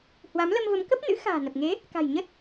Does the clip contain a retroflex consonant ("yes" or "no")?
no